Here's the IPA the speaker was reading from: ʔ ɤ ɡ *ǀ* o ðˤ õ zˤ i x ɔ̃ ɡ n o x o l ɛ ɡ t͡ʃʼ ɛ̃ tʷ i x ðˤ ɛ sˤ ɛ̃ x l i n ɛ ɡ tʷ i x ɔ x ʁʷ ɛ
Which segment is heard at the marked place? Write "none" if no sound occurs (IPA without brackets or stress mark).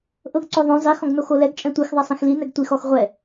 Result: ǀ